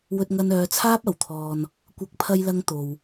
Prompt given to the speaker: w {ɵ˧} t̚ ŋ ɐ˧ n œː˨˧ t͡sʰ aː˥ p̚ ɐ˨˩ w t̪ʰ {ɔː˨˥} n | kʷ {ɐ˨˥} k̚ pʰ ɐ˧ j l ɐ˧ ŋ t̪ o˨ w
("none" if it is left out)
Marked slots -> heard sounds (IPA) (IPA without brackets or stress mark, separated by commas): ɵ˧, ɔː˧, ɐ˨˥